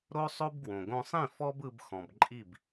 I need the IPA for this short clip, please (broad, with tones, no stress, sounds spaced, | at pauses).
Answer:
ɾ o˥ sˤ o˥ b ɡ w õ˩ ɡ õ˧ sˤ ĩ˥˩ f ɔ˥ b ɯ˧ b x ɔ̃˩ b ǃʼ i˥˩ b